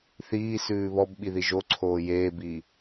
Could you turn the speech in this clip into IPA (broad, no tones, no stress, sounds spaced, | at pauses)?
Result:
θ iː s ʉː β ɔ b ɓ i ð i ʒ o ǀʰ oː j eː b iː